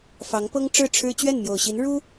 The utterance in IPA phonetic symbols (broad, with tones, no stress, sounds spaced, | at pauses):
f ɑ˧˥ ŋ p ɤ˥ ŋ ʈ͡ʂ ɻ̩˥˩ ʈ͡ʂʰ ɻ̩˥ t͡ɕ ɥ ɛ˥˩ n m j o˨˩ ʊ̯ ɕ i˧˥ n ɻ u˥